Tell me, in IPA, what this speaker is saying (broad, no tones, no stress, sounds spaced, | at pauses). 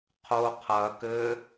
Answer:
qʰ o qʰ ɐ k ɘ